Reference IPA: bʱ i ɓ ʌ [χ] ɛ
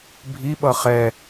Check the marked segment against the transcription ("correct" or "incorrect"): correct